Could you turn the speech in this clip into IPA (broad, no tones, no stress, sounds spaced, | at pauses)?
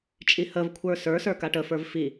t͡ʃʼ i h ə v kʷʰ ə˞ s ə˞ s ə˞ k a ʈ ə f ə˞ v f i